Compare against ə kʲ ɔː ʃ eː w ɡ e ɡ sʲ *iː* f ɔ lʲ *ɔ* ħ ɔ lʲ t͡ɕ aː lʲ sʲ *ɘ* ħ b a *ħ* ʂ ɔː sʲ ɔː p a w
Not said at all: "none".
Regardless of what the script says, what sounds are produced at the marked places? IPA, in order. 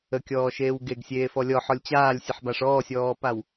eː, ɔ, ɘ, none

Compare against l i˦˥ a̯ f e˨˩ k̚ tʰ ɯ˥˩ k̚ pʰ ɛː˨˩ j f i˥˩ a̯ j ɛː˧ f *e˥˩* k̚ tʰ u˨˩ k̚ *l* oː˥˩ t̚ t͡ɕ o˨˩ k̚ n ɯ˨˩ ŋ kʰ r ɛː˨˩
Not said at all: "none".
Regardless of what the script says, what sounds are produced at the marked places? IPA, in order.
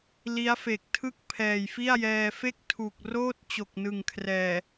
e˥˩, r

